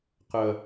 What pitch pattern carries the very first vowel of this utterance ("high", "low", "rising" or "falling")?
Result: low